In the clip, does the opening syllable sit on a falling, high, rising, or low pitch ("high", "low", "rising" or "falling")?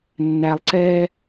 low